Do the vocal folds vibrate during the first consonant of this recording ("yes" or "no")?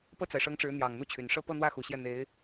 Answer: no